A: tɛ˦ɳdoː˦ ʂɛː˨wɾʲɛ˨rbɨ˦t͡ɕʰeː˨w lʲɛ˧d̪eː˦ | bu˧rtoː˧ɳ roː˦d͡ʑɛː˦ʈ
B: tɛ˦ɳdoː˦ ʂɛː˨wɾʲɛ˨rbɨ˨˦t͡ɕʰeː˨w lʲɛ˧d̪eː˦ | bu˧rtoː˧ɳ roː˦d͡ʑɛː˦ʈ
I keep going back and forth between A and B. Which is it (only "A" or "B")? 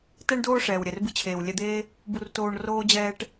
A